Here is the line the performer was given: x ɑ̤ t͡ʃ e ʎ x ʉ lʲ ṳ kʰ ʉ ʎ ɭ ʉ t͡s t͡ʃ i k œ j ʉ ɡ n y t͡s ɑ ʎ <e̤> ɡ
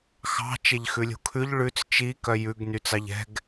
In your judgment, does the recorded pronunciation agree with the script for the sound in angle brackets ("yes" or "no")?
no